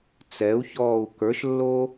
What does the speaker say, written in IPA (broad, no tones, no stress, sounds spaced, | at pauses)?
t͡s ɛ u̯ ç ɔː u̯ k ə˞ ʃ lː o